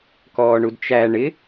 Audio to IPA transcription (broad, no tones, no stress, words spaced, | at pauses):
kɔːɳudt͡ʃæ ɳɪ